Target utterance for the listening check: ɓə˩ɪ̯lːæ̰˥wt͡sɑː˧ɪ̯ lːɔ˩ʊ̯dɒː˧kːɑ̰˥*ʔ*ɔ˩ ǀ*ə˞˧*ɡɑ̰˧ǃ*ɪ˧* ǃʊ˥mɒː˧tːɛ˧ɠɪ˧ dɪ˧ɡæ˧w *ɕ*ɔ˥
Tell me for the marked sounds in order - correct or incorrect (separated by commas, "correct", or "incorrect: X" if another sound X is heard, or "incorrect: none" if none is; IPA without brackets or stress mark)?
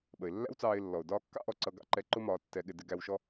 correct, incorrect: ʌ˧, incorrect: ɛ˧, incorrect: ʃ